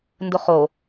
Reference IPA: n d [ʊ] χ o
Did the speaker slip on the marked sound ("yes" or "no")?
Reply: no